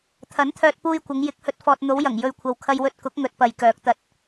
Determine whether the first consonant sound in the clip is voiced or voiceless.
voiceless